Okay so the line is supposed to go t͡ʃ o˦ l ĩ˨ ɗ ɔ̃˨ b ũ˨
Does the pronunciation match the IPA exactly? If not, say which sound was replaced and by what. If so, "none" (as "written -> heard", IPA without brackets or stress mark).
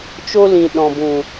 none